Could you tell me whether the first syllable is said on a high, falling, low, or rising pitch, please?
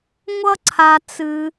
high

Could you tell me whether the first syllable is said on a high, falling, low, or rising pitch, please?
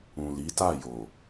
low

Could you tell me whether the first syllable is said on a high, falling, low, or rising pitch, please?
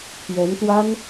rising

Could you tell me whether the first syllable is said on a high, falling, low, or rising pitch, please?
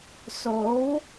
rising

